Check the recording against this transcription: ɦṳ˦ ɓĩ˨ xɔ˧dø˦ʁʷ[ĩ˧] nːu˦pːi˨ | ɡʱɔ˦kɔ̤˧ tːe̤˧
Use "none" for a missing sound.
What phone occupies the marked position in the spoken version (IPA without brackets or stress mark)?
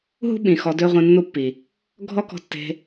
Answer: ĩ˧